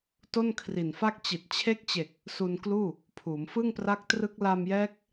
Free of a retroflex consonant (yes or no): yes